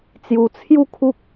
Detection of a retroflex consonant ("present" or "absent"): absent